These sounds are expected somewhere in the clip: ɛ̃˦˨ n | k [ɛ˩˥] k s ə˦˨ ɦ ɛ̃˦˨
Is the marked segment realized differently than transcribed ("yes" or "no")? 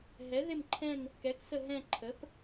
no